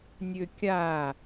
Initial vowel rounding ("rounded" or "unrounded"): rounded